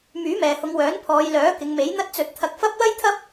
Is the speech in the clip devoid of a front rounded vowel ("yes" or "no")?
no